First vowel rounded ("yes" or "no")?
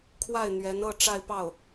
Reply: no